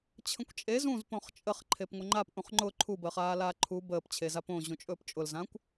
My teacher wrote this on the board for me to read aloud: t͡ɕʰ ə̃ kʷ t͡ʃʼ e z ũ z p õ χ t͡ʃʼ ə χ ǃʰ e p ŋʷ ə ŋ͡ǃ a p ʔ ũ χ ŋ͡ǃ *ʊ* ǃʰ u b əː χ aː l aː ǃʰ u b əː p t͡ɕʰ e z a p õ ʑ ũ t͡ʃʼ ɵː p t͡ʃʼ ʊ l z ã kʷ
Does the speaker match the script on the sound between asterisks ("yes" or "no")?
yes